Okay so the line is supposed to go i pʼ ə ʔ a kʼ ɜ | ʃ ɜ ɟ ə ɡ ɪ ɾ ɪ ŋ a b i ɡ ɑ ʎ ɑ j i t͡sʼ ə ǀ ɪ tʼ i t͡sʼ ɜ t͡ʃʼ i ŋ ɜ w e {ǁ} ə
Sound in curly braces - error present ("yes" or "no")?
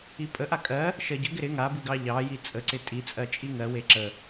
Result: no